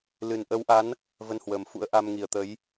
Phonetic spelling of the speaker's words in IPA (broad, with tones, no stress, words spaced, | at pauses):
lɨ˨˩nʔə˨˦wʔa˨˦n | və˧nhwəː˨˩mfṵ˧˥ə̯ ʔa˧mŋi˨˩ə̯t̪ə˨˦j